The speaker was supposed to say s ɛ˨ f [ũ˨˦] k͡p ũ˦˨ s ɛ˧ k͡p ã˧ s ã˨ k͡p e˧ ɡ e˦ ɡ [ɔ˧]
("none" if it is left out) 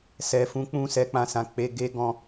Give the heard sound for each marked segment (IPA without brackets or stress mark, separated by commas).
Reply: ũ˨˦, ɔ̃˧